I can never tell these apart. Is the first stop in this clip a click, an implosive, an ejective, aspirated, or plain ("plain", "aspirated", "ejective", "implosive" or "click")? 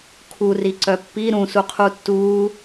aspirated